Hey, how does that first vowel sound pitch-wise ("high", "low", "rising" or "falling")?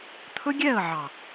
high